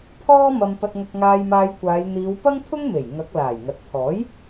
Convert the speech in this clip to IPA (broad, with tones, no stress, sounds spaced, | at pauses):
pʰ ɔː˥ m ɐ˧ m p ɐ˧ t̚ ŋ ɐ˧ k̚ ŋ aː˧ j m aː˧ j kʷ aː˨˧ j n̪ iː˨˧ w p ɐ˥ ŋ pʰ ʊ˥ ŋ m e˨˩ j ŋ ɐ˨˥ k̚ l aː˨˩ j ŋ ɐ˨ t̚ pʰ ɔː˨˥ j